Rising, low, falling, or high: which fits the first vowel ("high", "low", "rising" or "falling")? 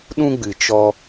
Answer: high